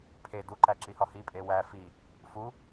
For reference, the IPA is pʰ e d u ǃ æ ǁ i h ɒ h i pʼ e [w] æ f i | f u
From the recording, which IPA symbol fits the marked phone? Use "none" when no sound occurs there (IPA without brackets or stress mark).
w